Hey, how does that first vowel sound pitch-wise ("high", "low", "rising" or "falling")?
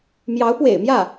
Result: rising